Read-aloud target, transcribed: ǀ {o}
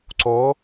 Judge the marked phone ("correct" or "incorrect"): correct